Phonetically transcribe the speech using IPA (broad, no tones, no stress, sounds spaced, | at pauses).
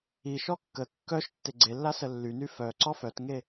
i ʃ ɔ kː ə kː œ ʃ tː e ɡ͡ǀ e lː a s ə lː y n y f œ ǀ ɔ f œ t ŋ e